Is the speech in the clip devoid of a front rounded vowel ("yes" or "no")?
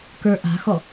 yes